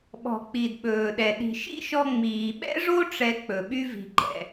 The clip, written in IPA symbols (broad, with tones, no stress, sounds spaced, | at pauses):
ɓ ɔ̤˩ k͡p i˩ d ɓ ɵː˩ ɗ ɛ˩ ɗ i̤˩ ʃ ḭ˥ ʃ ɔ˧ ŋ͡m iː˩ ɓ ɛ̰˥ ʐ o˥ ʈ͡ʂ ɛ˧ k͡p ɵ˩ ɓ y˥ v i̤˧ ɡ͡ǃ ɛ̰˧